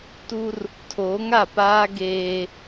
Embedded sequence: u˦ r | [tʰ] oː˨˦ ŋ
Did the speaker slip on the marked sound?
no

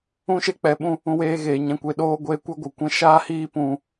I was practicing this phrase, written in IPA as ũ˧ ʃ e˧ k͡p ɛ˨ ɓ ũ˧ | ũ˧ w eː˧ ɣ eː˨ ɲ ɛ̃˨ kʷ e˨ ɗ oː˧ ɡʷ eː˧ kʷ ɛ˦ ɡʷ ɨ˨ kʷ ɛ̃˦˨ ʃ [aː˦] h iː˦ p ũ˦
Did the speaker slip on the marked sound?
no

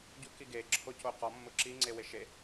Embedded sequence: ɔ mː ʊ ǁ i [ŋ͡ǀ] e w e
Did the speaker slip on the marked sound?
no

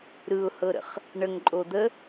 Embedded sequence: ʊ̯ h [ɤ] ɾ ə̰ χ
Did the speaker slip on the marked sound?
no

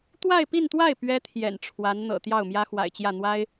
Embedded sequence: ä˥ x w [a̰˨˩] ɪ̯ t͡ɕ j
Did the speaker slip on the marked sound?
no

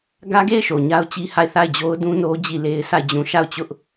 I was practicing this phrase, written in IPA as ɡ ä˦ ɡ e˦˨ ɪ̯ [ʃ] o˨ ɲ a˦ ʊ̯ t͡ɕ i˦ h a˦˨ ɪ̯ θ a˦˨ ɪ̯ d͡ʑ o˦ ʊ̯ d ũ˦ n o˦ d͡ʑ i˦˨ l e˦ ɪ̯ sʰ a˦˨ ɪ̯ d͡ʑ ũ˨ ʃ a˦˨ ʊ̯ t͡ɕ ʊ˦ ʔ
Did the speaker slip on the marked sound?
no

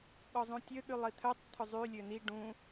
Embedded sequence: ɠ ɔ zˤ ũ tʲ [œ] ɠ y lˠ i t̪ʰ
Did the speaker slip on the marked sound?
yes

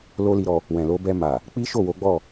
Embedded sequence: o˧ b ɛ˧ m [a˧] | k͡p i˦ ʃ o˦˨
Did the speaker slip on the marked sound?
yes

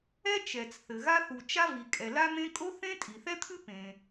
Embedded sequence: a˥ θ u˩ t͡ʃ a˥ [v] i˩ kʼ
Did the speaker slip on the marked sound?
no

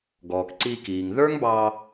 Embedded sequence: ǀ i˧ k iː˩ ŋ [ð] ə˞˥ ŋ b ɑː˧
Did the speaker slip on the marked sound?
no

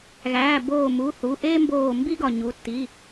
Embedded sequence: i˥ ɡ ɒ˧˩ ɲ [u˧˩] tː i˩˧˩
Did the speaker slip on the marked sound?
yes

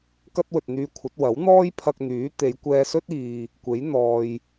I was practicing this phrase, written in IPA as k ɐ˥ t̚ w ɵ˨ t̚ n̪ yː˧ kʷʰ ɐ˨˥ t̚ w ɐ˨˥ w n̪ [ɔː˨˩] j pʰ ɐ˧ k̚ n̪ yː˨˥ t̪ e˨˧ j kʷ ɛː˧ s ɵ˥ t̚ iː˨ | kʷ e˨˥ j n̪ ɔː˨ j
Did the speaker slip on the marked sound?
yes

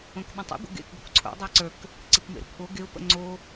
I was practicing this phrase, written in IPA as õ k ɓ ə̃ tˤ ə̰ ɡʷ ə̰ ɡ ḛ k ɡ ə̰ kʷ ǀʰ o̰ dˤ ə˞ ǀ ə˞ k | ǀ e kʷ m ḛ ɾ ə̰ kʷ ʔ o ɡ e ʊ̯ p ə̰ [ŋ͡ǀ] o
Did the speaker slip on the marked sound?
no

